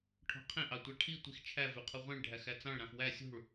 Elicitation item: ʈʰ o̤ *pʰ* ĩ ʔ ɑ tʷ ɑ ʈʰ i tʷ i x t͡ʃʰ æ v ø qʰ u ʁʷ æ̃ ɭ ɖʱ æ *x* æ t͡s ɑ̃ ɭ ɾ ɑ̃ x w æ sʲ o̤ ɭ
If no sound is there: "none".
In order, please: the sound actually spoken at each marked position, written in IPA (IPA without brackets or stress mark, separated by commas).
qʰ, x